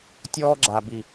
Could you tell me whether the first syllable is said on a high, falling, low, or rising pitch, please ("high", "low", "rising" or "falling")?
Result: high